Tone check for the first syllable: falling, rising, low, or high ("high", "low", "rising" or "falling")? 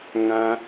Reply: high